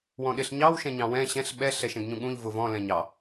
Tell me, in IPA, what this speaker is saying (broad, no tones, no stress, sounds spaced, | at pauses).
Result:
w ɔ̃ ɗ ɪ ɬ ɲ ɑ w ʃ ɛ̃ ɲ ɑ̃ w ɛ̃ ɕ ɛ̃ ɬ ɓ ɛ ɬ ɛ ʃ ɛ̃ ɡ ɲ ũ ɠ ũ ʎ v ʊ v ɔ̃ l ɛ̃ ɲ ɑ